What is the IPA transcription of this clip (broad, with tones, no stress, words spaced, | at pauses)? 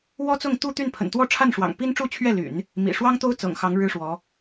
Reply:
wɔ˥t͡sʊ˥˧ŋt̪u˥˧t̪y˥˩n pʰə̰˨˩nt̪wɔ˥˧ʈ͡ʂʰa˥˩nʂwɑ̰˨˩ŋ pi˥nʈ͡ʂu˥˧t͡ɕʰɥɛ˥˩ly̰˨˩˦n | mḭ˨˩ ʂwɑ˥ŋt̪o˥ʊ̯ t͡sɤ̰˨˩ŋxɑ˧˥ŋ ɻɻ̩˥ʂwɔ˧˥